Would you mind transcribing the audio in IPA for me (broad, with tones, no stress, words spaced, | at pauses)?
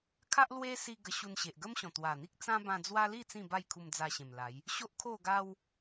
kʰa˦ʔlwe˦ si˧ ɡə˧ɕu˧nɕe˨ʔ ɡə˦mɕɔ̃˨˩t̪wa˨˩n̪i˦k̚ t͡sã˦bã˧ d͡zwa˦li˥˧ t͡sĩ˥˧ba˥˧jkʰu˧m d͡za˧ɕẽ˨˩mla˨˦j | ɕo˦ʔkʰo˥˧ɡa˦w